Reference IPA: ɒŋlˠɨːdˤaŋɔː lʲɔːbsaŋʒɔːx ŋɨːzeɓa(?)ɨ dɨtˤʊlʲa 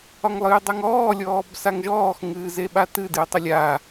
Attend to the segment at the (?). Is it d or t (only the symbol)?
t